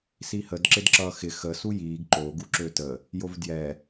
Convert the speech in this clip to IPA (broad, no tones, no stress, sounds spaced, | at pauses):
s i h ə d ǁ ɪ d ǁ ʌː x ɪ x ə s u j iː ɡ ǃ o ɡ u ǁ ø t ə | j o v d j ɛ